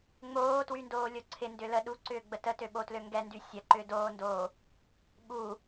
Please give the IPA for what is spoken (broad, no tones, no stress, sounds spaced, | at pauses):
ŋ͡m oː t w y n d oː lʲ o ǀʰ ɪ n d ʏ l ə ɗ u ǀ ʏː ɡ͡b ə t ə t ø ɓ o t l ø ŋ ɡ ɛ n d y sʲ ɐ ǃ ʏː d oː n d oː | ɓ u